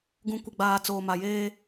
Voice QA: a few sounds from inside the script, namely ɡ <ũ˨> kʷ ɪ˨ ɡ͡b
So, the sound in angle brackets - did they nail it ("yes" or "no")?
yes